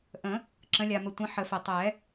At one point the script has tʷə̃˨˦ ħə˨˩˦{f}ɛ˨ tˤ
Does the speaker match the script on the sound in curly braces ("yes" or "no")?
yes